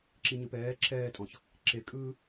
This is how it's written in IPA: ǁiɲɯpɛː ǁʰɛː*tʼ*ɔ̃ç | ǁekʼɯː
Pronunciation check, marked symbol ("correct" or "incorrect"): correct